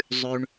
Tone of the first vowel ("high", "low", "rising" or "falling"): low